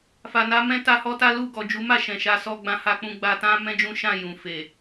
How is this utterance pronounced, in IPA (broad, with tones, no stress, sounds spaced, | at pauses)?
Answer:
f a˨ n a˧ m ɛ̃˦ t a˦ h ɔ˦ t a˦ l u˦˨ ɡ ɔ˨ d͡ʒ u˨˦ m a˦˨ ʃ ɛ̃˨ ʃ a˧ s ɔ˧ ɡ͡b ã˧ h a˧ k͡p ũ˧ ɡ͡b a˧ t ã˦ m ɛ̃˦ d͡ʒ ũ˦ ʃ ã˦˨ j ũ˨ f e˨